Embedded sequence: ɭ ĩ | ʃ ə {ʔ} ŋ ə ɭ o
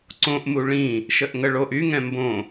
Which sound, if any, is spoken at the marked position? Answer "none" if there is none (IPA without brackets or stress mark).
ʔ